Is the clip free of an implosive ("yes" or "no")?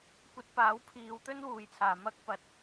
yes